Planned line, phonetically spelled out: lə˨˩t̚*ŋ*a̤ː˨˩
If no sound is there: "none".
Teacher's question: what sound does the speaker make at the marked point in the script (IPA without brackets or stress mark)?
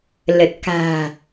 k